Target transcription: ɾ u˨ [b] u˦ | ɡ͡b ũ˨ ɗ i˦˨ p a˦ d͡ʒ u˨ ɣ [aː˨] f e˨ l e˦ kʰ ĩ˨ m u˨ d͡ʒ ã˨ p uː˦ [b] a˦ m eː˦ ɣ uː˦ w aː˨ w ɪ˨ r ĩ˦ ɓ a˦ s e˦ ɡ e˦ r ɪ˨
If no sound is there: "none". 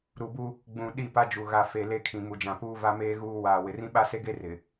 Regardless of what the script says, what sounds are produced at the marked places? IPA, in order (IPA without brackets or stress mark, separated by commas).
b, a˨, v